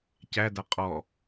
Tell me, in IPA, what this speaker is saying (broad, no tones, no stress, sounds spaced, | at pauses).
c æ d a qʼ ɔ